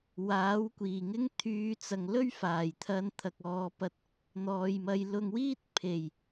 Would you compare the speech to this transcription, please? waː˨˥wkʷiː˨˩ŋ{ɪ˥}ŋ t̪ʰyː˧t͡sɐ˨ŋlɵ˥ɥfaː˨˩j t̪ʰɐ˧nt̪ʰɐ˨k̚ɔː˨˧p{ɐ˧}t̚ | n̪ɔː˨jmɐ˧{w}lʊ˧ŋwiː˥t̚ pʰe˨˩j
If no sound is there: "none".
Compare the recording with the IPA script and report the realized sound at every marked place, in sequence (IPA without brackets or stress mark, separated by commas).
ɪ˥, ɐ˧, j